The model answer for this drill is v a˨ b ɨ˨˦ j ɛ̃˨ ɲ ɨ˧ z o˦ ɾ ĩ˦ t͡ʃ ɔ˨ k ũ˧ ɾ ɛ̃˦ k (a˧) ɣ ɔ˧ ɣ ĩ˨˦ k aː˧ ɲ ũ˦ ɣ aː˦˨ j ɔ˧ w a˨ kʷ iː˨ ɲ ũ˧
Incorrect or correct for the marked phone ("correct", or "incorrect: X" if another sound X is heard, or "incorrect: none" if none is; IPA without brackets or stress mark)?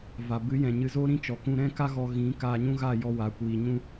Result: incorrect: a˦